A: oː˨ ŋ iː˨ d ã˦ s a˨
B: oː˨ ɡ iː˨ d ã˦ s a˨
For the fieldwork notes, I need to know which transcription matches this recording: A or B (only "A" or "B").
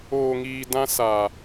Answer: A